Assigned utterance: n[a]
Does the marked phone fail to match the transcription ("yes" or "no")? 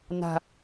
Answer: yes